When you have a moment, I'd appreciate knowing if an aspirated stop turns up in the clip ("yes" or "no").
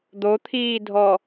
yes